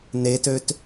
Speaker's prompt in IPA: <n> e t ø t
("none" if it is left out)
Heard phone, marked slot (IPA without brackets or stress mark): n